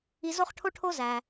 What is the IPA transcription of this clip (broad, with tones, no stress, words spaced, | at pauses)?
i˧zo˦χʈʰo˦ʈʰo˦ zæ˧